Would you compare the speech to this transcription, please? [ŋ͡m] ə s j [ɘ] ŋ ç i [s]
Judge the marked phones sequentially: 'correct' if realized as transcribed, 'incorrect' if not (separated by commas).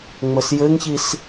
correct, correct, correct